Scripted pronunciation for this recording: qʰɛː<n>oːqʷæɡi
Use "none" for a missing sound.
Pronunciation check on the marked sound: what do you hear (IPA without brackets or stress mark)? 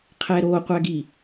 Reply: ɾ